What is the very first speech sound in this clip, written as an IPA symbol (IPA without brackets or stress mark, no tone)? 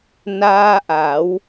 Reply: n